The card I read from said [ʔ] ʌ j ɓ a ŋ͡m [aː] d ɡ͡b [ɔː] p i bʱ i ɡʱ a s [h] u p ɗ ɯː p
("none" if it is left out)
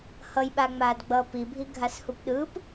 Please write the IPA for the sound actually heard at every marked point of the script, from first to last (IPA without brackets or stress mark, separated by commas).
h, aː, ʌː, h